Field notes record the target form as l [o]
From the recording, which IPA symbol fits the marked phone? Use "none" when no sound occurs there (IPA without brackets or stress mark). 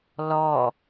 ɔ